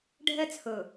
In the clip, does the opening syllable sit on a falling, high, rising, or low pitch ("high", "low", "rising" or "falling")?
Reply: high